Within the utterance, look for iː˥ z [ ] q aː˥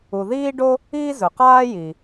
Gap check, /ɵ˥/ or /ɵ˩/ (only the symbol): ɵ˩